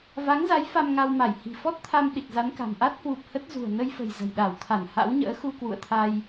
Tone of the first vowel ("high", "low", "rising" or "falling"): rising